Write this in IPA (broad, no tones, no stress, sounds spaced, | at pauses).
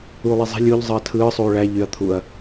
uː lˠ e zˤ i̤ lʲ u ʎ zˤ ɯ ɐ̯ tʰ ɯː sˤ uː ɭ æ ʎ y ɐ̯ t̪ʰ u ɐ̯